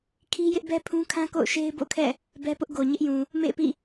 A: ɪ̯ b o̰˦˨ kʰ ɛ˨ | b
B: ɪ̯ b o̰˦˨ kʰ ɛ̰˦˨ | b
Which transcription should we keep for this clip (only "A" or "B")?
B